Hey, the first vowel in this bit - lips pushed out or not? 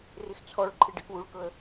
no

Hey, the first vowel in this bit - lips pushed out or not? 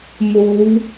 yes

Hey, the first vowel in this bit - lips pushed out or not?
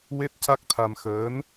no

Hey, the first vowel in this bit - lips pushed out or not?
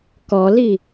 yes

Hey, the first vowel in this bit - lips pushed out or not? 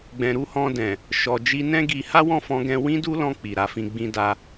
no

